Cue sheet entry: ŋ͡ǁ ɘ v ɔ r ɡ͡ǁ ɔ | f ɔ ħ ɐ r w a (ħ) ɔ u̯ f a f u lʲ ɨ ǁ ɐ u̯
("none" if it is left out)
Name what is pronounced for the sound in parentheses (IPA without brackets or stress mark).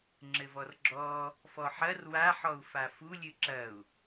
ħ